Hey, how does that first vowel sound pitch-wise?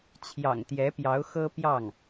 low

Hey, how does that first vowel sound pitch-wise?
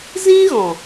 high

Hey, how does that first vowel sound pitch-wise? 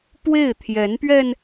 falling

